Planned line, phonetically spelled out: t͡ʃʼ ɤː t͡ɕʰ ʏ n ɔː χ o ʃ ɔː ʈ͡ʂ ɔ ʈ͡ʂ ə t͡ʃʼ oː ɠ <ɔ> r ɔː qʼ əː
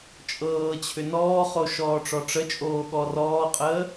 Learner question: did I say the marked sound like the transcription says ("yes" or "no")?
yes